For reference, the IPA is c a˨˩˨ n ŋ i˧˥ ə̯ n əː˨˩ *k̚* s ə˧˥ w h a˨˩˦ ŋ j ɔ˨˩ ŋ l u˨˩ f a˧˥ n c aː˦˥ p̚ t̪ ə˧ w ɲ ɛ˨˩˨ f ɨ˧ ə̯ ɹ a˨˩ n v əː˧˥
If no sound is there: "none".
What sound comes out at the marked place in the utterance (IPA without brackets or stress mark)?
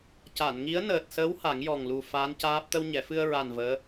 t̚